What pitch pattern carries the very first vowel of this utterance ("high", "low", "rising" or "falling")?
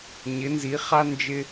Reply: rising